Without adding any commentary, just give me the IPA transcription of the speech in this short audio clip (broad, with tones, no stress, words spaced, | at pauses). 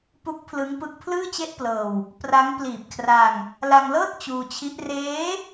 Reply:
pu˦˥k̚pʰlɯ˦˥ŋpɯ˦˥k̚ pʰlɯː˥˩t͡ɕe˥˩ʔplɤː˧w | pra˦˥ŋ pliː˨˩p̚kʰra˧ŋ | la˧ŋlɤː˥˩t̚ t͡ɕuː˧t͡ɕʰi˦˥ʔ reː˦˥